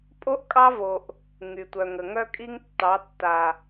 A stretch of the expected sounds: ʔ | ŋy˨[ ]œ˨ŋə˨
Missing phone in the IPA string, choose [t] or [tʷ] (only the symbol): tʷ